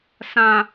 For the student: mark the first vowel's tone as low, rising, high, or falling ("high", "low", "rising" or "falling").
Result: low